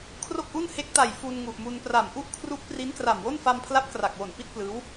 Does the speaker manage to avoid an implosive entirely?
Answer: yes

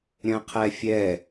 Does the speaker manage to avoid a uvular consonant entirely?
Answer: no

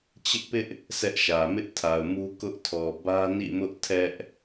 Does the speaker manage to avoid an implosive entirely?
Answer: yes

